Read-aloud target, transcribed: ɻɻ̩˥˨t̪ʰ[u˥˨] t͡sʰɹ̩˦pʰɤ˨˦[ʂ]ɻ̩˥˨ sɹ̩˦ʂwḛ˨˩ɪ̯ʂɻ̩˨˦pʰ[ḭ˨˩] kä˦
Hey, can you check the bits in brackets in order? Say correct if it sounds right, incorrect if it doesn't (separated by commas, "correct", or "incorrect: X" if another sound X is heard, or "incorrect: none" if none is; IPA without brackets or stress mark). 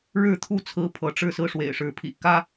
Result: correct, incorrect: ʈ͡ʂ, correct